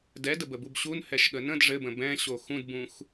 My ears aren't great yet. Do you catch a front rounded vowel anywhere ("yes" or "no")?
no